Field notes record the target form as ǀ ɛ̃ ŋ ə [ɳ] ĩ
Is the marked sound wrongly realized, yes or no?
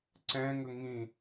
yes